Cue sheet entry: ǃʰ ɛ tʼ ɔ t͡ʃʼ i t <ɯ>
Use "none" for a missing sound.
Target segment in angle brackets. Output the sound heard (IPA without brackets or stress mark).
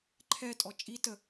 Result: ə